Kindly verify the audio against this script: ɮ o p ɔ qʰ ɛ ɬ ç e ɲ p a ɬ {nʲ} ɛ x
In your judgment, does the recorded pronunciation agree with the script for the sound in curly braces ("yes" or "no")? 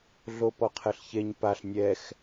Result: yes